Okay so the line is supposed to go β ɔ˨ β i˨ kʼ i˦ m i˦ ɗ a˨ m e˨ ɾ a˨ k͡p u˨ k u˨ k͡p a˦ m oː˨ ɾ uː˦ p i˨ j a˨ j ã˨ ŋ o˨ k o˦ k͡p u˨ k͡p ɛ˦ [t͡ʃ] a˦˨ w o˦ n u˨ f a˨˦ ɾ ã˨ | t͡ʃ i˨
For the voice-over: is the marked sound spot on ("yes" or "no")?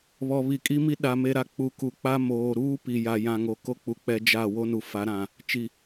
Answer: no